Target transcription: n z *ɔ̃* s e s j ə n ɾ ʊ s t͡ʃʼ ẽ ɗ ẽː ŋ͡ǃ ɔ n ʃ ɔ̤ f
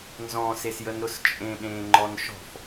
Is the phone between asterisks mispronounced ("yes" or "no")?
no